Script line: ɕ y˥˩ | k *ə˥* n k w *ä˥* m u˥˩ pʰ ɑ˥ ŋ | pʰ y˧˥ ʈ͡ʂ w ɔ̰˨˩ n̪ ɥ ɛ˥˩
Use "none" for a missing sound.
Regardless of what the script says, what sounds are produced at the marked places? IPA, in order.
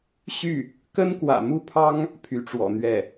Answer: ə˥, ä̰˨˩

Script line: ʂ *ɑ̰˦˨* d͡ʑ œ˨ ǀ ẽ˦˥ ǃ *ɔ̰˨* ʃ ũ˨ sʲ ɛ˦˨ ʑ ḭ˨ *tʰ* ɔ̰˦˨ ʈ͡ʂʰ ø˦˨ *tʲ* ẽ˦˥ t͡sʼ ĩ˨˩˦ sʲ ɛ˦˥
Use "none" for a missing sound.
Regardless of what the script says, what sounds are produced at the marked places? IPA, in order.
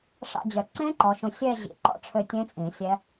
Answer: ɑ̰˦˨, ɔ˨, ǃ, tʲ

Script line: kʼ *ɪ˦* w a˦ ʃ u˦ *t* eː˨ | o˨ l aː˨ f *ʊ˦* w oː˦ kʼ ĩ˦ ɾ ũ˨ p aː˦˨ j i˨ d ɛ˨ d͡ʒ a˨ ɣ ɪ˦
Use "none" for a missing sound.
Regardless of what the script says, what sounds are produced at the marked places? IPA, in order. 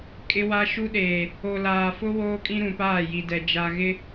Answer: ɪ˦, ɗ, ʊ˦

